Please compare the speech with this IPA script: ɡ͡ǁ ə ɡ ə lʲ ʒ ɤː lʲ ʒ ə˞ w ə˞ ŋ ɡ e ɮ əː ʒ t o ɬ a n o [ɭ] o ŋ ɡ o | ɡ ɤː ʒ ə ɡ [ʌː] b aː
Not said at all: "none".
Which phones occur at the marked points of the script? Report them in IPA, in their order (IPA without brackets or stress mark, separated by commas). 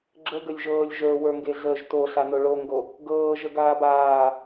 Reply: ɭ, aː